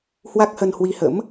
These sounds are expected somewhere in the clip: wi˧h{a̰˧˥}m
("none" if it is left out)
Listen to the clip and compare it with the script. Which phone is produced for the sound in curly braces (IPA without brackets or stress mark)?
ə̰˧˥